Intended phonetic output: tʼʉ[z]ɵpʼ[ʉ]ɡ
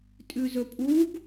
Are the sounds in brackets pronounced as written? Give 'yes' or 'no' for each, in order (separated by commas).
yes, no